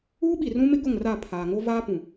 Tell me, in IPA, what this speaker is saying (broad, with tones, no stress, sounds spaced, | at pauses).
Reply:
uː˦ ɓ i˨ r ũ˦ m ɪ˦ ɡ ʊ˦˨ ŋ r a˦˨ pʰ aː˨ ŋ o˦ v aː˦ p ũ˨